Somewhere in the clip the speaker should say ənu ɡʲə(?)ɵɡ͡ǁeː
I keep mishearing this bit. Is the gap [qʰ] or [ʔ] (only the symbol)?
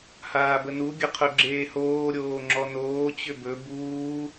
qʰ